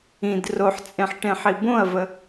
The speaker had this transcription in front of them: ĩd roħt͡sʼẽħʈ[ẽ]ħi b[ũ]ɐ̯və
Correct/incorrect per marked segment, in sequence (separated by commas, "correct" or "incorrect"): correct, incorrect